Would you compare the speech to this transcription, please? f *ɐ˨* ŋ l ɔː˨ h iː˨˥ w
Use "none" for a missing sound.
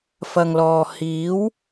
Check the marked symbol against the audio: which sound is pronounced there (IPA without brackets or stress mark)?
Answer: ɐ˨